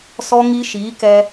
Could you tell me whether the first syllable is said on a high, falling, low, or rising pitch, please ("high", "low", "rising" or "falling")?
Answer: high